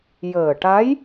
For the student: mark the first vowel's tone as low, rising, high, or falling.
low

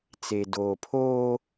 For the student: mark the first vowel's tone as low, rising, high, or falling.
low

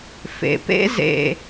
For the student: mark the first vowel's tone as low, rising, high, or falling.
low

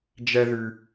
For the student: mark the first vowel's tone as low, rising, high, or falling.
low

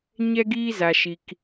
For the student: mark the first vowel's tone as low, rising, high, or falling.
high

